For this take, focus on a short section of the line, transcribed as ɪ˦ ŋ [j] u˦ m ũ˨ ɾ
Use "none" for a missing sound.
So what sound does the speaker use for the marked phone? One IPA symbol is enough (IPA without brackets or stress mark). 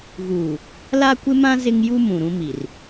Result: j